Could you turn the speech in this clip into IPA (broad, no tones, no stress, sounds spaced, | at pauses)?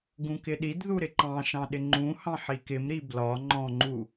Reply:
ɡ ũ k ɪ ɗ i d ð u ɾ ɪ ǃ ɑ̃ ʃ ɑ̃ ɗ ɪ ŋ͡ǃ ũ h ɑ̃ ħ i k ɪ m ɾ i b l ɒ ŋ͡ǃ ɔ̃ ŋ͡ǃ u